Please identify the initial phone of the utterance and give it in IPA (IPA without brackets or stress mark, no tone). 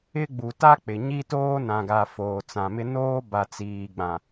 ɪ